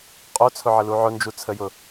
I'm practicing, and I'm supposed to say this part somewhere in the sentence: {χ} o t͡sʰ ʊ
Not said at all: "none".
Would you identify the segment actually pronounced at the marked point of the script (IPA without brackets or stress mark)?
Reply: qʼ